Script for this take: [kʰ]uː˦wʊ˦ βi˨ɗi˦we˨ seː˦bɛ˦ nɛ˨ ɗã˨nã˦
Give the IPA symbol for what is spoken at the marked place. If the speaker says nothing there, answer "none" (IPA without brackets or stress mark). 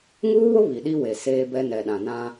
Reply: ŋ